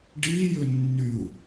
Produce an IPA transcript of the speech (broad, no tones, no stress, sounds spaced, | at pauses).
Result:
ɖ i j ʏ nː y u̯